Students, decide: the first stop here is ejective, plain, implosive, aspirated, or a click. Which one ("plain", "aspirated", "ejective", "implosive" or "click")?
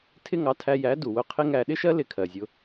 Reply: aspirated